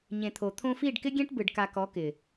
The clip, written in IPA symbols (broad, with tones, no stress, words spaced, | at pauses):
ɲẽ˨t̪ʰo˨ t̪ʰõ˧fi˦˨ɖ kɪ˦ɡʲẽ˦ʈbɯ˨ɖ ka˧kɔ˨˦ kɪ˨